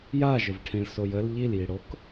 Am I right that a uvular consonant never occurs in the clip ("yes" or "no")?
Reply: yes